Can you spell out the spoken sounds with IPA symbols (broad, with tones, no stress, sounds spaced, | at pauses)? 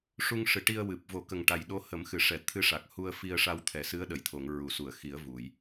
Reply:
ʂ u˧ ŋ ʂ ɨ˨˩ ʈ i˧ ə̯ w ɨ˨˩ p̚ v o˨˩˦ k ə˨˩ ŋ ʈ a˨˩ j ɗ o˧˥ h ə˨˩˦ m x ɨ˨˩˨ ʂ ɛ˨˩˨ t̪ʰ ɨ˧˥ ʂ a˨˩ k̚ h u˧ ə̯ f i˧ ə̯ ʂ a˧ w t̪ʰ ɛ˨˩˦ s ɨ˧˥ ə̯ ɗ ə˨˩˨ j t̪ʰ o˨˩˨ ŋ ɹ u˨˩˨ s u˨˩˨ ə̯ x i˨˩˦ ə̯ v u˨˩˨ j